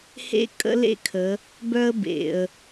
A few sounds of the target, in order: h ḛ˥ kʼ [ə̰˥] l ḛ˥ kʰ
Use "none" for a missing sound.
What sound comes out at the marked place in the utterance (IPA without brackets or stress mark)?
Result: ə̰˥